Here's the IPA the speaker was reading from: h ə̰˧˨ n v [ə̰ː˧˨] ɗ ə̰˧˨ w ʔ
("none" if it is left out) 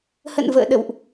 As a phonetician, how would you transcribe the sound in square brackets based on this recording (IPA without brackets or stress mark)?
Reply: ə̰ː˧˨